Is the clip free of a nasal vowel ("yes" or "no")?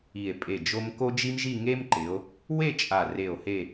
yes